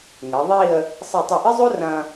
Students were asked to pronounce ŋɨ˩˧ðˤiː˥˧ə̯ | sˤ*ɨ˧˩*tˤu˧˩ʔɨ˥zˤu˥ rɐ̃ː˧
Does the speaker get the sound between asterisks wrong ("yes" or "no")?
no